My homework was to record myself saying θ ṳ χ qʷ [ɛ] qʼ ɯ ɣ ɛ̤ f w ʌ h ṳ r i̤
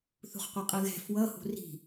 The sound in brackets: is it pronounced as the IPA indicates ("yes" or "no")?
yes